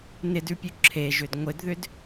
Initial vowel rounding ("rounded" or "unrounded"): unrounded